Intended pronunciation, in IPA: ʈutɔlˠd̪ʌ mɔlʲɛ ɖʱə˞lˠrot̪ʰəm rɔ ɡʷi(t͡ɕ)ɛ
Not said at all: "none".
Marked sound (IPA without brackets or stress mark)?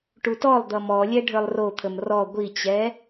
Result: t͡ɕ